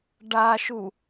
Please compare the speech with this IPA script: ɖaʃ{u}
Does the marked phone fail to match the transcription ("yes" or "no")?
no